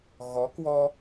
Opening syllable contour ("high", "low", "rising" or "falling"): rising